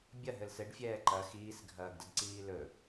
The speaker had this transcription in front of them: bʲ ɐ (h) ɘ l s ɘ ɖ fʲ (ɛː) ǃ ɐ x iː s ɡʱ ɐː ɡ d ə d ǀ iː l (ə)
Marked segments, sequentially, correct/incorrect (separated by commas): incorrect, correct, incorrect